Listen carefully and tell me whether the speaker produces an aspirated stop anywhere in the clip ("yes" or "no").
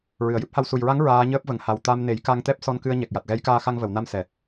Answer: no